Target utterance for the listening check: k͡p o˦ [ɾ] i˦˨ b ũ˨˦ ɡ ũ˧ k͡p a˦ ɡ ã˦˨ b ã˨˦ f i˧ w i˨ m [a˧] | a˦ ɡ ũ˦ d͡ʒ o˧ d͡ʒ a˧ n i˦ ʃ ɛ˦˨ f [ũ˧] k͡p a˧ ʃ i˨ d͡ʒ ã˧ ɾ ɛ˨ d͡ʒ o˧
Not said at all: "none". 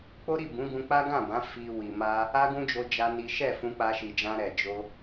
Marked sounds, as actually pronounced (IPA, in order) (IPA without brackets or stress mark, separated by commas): ɾ, a˧, ũ˧